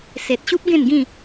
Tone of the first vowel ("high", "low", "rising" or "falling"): low